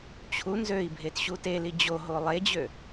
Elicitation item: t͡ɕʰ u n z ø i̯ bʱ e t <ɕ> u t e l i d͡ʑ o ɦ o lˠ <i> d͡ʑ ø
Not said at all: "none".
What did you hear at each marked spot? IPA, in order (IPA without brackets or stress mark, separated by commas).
ɕ, e